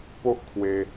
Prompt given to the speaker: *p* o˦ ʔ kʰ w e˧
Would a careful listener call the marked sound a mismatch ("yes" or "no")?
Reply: no